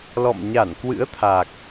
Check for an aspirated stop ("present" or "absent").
present